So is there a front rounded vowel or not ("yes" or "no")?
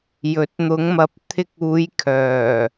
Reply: yes